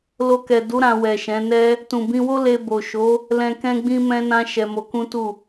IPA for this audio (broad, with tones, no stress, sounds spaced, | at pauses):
l o˧ k ɛ˨ d u˨˦ ɾ ã˧ w ɛ˨ ʃ ɛ̃˨˦ n ɛ˧ | t ũ˨ b ĩ˧ w o˦ l e˧ b o˨ ʃ o˨˦ | l ɛ̃˨ k ɛ̃˧ ɡ͡b ĩ˧ m ɛ̃˧ n ã˧ ʃ ɛ˧ m o˧ k ũ˦ t u˦˨